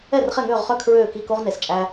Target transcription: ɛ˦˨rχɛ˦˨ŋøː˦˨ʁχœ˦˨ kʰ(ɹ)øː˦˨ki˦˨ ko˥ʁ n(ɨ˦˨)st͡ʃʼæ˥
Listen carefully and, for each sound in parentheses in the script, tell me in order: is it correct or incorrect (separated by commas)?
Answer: correct, incorrect